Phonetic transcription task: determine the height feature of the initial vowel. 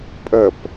mid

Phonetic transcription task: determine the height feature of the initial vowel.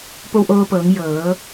mid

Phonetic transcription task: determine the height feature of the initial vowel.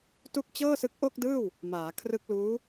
high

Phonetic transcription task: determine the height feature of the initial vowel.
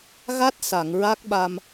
low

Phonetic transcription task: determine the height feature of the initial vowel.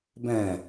low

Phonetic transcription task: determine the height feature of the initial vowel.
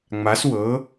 low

